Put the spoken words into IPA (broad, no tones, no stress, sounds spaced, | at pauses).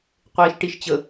qʷ eː ʃ ʈ i ʃ t͡ɕ ə